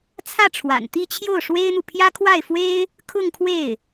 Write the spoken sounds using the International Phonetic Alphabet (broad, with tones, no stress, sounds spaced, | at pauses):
t͡sʰ ä˥˩ ʈ͡ʂʰ w a̰˨˩ n t̪ i˥˧ t͡ɕʰ j o˥˩ ʊ̯ ʂ w e˥ ɪ̯ n̪ u˨ pʰ j ä˥ kʰ w a˥˩ ɪ̯ f w e˥ ɪ̯ | kʰ ʊ˥˧ ŋ kʰ w e˥˩ ɪ̯